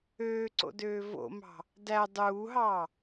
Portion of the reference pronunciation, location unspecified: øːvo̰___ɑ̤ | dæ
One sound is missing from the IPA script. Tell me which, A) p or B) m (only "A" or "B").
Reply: B